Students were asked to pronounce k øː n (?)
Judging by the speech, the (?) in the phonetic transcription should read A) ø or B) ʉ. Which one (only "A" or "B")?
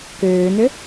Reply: A